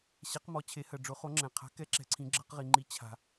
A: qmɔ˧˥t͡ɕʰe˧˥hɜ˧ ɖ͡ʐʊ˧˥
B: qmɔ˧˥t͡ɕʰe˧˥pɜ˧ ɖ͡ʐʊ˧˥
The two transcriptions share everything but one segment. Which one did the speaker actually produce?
A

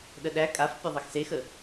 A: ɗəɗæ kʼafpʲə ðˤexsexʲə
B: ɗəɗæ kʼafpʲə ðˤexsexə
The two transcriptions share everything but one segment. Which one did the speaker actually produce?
B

